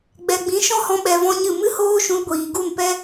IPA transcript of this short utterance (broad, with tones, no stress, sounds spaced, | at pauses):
ɡ͡b ɛ˨ ɡ͡b ĩ˨˦ ʃ ɔ̃˦ h ɔ̃˧ ɓ ɛ˧ v ɔ̃˦ ɲ ɨ˦˨ m ɨ˦ h oː˦ ʃ ũ˧ l ɡʷ iː˨ ɡ u˦˨ n p ɛ˦